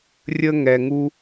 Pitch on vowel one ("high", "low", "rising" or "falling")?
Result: high